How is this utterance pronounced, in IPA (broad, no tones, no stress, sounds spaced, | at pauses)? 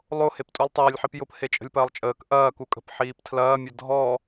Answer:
lˠ o h e p tʼ u lˠ tˤ ɐː lʲ ħ i p j ʊ p h e t͡ʃʼ ə̤ lʲ p ɐː lˠ t͡ʃʼ əː k ʔ ɐː k u kʼ ə̤ p ħ iː p tʰ l ɐː mʲ ə dʱ ɔ